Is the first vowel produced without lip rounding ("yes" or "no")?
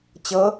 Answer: yes